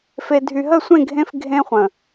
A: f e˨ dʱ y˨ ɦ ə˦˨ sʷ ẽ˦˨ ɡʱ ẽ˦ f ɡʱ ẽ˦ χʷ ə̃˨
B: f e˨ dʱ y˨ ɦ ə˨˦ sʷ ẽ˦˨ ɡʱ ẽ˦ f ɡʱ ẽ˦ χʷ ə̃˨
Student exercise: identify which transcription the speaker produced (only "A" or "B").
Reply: A